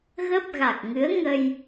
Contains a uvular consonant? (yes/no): no